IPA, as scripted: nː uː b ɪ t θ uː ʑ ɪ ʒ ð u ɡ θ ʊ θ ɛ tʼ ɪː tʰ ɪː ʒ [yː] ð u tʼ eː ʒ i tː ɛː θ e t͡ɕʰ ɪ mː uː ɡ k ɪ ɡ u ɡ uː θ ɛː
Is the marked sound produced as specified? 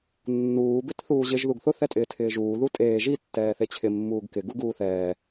no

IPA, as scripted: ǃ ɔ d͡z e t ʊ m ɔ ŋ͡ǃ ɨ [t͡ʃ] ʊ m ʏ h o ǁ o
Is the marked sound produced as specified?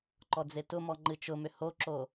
yes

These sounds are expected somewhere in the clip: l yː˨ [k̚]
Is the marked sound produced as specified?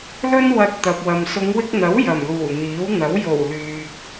yes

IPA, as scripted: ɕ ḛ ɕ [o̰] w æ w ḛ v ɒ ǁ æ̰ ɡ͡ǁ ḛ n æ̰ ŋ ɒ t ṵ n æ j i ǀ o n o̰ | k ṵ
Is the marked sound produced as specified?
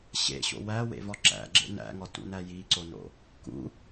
yes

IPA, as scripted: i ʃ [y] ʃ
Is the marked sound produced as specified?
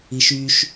yes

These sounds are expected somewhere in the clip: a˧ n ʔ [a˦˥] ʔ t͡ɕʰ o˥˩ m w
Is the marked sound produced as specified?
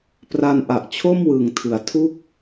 no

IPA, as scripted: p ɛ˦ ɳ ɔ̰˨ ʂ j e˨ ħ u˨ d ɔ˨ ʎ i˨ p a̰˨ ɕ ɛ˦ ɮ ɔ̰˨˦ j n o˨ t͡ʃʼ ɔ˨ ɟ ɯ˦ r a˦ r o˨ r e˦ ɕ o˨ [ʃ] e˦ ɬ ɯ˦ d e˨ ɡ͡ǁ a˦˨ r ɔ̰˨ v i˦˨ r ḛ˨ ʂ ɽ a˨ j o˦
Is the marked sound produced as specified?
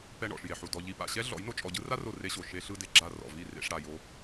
yes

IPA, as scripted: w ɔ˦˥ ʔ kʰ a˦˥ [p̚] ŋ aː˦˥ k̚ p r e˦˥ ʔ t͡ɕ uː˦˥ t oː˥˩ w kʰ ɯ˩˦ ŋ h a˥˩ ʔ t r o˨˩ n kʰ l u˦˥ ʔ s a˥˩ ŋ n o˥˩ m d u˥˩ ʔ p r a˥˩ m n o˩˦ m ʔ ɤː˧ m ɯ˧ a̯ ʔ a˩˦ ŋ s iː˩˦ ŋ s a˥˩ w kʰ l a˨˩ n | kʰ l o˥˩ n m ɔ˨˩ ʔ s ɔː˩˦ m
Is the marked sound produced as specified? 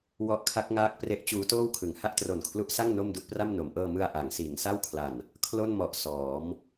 no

